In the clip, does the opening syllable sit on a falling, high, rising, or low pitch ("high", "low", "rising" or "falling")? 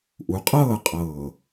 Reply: rising